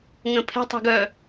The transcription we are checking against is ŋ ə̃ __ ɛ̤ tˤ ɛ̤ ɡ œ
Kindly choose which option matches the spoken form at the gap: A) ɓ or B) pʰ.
B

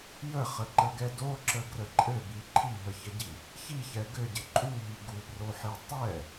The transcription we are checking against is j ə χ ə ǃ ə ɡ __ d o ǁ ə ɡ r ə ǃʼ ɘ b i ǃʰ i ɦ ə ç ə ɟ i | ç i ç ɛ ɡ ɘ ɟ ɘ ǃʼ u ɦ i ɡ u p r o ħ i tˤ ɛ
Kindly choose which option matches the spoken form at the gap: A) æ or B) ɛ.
B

